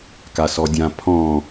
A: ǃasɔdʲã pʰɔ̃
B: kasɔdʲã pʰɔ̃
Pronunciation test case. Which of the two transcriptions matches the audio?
B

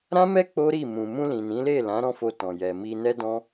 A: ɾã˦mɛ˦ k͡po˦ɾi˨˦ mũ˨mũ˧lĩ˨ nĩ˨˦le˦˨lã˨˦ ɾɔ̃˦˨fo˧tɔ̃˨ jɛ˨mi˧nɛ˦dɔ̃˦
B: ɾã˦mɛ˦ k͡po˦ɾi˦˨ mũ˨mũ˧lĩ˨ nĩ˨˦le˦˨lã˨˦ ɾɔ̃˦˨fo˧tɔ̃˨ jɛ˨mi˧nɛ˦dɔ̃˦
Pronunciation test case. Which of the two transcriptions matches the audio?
B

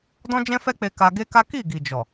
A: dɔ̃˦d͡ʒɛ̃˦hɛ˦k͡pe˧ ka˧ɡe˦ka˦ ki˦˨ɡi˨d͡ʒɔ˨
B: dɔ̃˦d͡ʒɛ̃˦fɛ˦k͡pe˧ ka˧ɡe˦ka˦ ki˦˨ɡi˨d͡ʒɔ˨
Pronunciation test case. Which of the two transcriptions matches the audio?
B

